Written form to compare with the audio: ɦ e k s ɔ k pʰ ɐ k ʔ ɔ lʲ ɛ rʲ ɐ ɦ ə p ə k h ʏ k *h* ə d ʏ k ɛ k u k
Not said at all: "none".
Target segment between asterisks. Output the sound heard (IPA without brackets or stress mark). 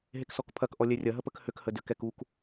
h